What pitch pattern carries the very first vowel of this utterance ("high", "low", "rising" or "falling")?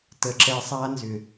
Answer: low